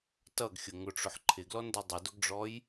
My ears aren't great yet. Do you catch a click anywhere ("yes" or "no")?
yes